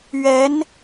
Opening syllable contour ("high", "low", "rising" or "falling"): rising